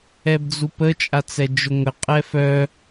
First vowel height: mid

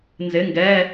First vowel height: high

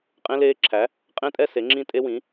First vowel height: mid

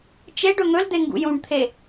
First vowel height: mid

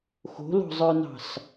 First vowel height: mid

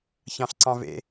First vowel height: low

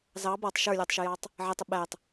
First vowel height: low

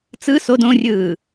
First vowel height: high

